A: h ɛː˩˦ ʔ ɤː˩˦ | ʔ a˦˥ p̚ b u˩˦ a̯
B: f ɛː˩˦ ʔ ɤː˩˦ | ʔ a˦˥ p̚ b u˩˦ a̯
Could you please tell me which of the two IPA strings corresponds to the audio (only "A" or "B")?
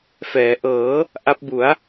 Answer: B